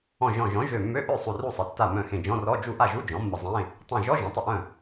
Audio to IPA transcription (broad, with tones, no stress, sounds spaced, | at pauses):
ɔ̃˧˩ ʒ ɔ̃˧˩ ʒ ɔ̃˩˥ ʒ ø˧˩ mː ø˧˥˧ ʔ ø˥˩ sˤ u˧˩ r u˥˩ sˤ ə˩˥ tː a˧˩ m œ̃˧˩ x ẽ˧˩ d͡ʒ ɔ̃˧˥˧ r ɔ˧˥˧ d͡ʒ u˥˩ ʔ a˥˩ ʒ u˧˥˧ d͡ʒ ɔ̃˩˥ mː ə˧˩ zˤ ẽ˧˥˧ | tˤ ẽ˧˩ ʒ ɔ˧˥˧ ʒ ɔ̃˩˥ tˤ ə˥˩ ʔ œ̃˥˩